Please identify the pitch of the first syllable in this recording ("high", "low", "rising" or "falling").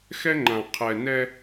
high